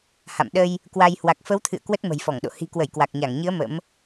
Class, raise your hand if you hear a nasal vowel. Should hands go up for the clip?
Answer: no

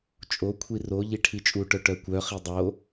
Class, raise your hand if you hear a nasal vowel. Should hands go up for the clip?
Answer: no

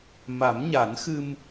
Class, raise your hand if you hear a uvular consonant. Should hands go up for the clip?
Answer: no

